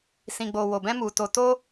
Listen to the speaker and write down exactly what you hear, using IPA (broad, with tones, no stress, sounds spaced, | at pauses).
s ĩ˨ ɡ͡b o˨ w o˨ b ɛ̃˧ m u˨ t o˨ t o˧